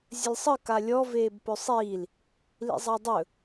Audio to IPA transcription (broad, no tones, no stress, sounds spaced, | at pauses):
zʲ ə lʲ sˤ ə k a lʲ ɔ v eː b p ɵ sˤ iː l | l ḭ zˤ a dˤ ɵ